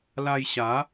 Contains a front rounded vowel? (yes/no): no